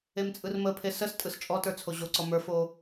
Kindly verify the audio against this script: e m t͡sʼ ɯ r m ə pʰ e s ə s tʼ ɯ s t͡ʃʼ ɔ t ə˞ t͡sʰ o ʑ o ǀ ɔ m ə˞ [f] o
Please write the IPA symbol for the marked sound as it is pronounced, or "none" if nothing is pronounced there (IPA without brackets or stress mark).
f